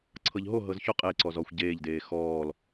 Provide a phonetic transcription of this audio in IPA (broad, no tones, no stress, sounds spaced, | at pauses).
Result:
ǀʰ ɤ ʎ ɦ o ɦ ɤ z ç o qʼ e ǀ ɔ z ɔ xʷ ɟ eː ʎ d eː x ɔː l